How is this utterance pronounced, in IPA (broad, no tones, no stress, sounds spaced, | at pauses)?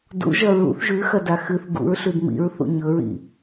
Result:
d ṵ ʒ ɐ ɹ ṵ θ ʒ ʉ x ɐ d a x ɨ θ ɡ ṵ ɹ ɬ ʉ d m ḭ ɹ θ ṵ ɲ ɵ ɹ ḭ